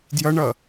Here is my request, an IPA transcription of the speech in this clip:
djʌɳʌ

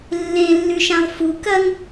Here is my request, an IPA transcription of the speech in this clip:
lːẽlːʉʃãlˠ fu kɐŋ

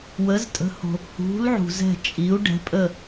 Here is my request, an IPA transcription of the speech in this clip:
wə˧˥ztʼə̤˧˥ho̤˧ | hṳ˧˥l ʕṳ˧zɛ̤˥˧ t͡ʃʼi˧˥u̯ɖɛ̤˧˥pʼə˥˧

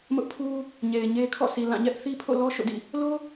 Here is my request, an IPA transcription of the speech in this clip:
mʊ˦ʔpʰu˦ | ɲe˨ɪ̯ɲe˦ kʰɔ̰˦˨si˨ lã˦˨ɲɛ˦ʔ θi˦pʰo̰˦˨lɔ˦ ʃo̰˦˨dḭ˦˨ | lo˦

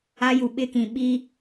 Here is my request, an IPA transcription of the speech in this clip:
a˦ju˨ɓɪ˦kĩ˨ ɓi˦

